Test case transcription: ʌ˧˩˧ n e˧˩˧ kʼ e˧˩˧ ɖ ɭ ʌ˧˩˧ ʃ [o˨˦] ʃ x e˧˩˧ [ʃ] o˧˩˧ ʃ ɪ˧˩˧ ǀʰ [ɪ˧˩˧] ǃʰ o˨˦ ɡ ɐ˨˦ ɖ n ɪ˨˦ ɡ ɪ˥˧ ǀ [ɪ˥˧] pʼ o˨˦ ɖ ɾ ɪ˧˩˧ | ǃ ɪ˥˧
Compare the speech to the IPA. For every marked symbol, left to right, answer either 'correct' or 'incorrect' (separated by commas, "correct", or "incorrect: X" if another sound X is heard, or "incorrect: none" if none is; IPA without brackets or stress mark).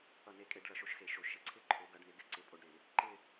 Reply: correct, correct, incorrect: ɪ˥˧, incorrect: ɪ˨˦